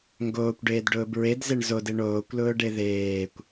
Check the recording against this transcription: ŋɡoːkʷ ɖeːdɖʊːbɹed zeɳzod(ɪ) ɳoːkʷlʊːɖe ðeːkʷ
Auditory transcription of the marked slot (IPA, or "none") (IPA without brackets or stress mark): ɪ